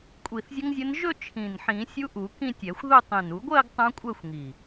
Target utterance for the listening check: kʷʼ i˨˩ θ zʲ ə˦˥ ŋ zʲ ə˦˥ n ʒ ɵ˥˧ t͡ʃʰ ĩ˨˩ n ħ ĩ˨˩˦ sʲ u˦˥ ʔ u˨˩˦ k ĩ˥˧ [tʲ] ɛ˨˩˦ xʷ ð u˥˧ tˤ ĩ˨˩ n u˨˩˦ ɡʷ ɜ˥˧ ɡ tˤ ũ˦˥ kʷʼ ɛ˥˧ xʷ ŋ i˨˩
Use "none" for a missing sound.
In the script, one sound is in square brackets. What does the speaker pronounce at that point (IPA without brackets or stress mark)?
tʲ